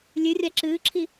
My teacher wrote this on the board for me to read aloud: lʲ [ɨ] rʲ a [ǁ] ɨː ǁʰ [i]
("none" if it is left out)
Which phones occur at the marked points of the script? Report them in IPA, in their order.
ɨ, ǁ, i

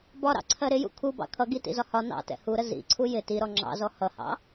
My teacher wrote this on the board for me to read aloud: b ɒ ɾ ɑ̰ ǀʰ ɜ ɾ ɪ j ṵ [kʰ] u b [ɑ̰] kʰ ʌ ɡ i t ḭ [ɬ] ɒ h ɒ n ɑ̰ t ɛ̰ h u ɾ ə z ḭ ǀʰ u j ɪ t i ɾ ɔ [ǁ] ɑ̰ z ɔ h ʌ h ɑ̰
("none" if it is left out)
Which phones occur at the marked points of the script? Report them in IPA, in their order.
kʰ, ɑ̰, z, ŋ͡ǁ

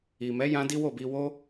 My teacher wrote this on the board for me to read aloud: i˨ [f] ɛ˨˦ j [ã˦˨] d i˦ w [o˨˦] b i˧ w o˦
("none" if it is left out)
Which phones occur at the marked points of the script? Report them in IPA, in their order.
m, ã˧, o˦˨

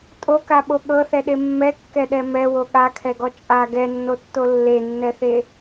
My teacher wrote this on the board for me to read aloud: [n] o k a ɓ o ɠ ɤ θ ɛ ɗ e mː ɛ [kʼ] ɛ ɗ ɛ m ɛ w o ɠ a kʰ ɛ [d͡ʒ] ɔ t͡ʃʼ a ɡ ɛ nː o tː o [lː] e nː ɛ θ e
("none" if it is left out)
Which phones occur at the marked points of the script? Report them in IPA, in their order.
tʼ, kː, ɡ, lː

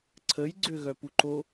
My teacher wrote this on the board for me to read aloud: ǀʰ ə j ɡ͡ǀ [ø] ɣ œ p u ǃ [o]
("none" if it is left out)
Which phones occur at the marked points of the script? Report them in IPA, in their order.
ø, o

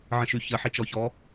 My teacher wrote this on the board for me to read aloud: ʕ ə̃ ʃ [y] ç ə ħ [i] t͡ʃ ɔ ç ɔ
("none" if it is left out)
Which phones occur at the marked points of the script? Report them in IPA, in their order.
y, i

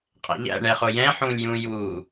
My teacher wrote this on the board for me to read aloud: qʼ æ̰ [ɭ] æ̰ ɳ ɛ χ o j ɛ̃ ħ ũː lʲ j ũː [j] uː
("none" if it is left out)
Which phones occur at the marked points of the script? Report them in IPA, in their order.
ʎ, j

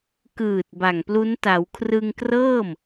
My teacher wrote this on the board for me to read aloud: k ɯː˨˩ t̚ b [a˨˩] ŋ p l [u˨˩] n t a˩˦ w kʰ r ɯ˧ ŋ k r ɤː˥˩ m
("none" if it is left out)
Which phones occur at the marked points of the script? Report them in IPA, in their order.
a˨˩, u˦˥

